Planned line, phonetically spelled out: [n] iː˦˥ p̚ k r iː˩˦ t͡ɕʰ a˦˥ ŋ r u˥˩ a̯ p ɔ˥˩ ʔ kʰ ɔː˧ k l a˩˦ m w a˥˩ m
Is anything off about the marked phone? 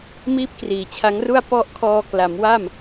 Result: yes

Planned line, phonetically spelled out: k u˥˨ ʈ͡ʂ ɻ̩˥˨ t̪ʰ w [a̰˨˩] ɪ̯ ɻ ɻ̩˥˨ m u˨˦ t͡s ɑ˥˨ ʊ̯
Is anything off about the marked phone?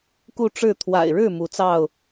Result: no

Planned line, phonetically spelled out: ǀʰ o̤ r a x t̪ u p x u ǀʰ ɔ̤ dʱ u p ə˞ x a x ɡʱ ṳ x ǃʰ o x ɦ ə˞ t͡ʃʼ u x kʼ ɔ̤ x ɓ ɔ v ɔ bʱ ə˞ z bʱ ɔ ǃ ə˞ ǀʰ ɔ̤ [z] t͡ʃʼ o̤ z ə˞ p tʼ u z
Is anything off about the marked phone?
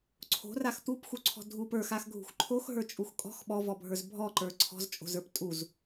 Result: no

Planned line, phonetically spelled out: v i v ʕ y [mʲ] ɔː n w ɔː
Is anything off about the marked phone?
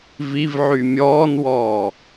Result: no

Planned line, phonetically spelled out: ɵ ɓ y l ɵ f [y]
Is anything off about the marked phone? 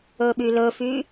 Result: no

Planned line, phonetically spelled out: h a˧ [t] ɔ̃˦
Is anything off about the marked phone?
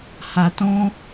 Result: no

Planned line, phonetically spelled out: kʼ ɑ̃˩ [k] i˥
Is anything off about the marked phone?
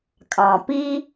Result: yes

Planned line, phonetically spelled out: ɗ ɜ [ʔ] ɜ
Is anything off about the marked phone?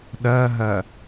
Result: yes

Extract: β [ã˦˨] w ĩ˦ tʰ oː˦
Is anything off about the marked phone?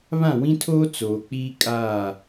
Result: no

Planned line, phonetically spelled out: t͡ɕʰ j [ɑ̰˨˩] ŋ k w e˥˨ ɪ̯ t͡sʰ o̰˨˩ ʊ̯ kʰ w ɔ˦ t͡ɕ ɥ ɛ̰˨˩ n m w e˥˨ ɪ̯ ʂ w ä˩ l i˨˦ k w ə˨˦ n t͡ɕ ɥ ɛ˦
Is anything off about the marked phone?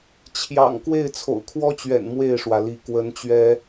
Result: no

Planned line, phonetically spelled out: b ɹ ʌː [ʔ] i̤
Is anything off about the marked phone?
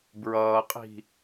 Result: yes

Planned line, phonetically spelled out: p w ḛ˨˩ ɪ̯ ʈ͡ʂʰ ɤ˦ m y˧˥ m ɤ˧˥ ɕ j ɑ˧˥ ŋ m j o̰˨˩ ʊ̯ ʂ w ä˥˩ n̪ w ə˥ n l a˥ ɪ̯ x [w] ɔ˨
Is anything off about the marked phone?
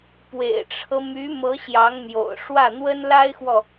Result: no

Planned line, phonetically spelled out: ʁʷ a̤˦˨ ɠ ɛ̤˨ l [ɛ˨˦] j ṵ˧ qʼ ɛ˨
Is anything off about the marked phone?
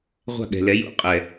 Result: no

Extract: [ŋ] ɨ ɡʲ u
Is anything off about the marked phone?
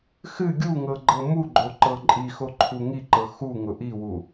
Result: yes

